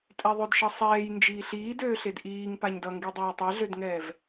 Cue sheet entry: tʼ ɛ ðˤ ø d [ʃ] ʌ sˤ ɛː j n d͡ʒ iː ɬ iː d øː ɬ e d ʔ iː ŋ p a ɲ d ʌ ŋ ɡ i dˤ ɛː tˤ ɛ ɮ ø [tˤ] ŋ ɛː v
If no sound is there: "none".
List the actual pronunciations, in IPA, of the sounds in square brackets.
ʃ, d

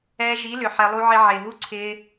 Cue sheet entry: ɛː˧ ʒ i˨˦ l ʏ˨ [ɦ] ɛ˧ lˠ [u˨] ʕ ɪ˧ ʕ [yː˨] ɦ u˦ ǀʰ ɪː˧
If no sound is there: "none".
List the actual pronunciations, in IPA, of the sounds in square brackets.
ħ, u˦, ɪː˨

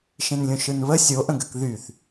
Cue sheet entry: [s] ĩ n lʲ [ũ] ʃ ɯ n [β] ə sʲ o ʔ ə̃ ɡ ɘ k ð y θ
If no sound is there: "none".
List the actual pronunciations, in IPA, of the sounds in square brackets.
ʃ, ũ, β

